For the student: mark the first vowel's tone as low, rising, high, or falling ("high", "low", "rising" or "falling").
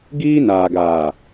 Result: high